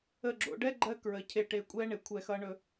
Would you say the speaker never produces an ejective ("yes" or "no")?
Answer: no